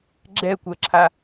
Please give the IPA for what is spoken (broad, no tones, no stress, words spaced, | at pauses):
ɡ͡ǁɛkʷɜǁʰa